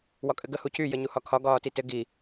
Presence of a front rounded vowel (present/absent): present